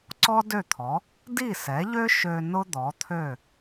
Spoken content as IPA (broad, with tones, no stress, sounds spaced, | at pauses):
ǀ ɔ˥ d ø˥˩ t̪ʰ ɔ˩˥ | d i˥˩ s ɛ˩˥ ʎ ø˥ ʃ ø˧ n ʊ˥ d̪ ɔ˩˥ t̪ʰ ø˥˩